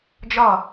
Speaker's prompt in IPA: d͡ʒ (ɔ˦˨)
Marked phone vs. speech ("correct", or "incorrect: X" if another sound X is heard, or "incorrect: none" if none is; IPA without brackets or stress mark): correct